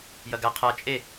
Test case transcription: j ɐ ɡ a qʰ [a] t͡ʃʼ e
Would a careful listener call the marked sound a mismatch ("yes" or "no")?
no